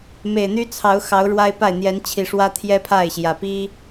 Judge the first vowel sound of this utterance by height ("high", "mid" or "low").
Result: mid